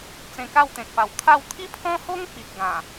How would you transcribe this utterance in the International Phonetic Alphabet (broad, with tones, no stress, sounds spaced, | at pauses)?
t͡s ẽ˧ k a˥˧ w t̪ ẽ˨ k̚ p a˨˩ w t̪ʰ a˥˧ w t̪ʰ i˦ pʰ ɔ̃˦ h o˦ ŋ p i˨ t̚ ɡ ã˨˩